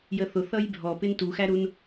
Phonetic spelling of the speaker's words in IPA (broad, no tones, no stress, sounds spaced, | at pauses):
j ə θ ʊ θ ʌ j bʱ ɔ p ɪ n t u x æ ɾ u n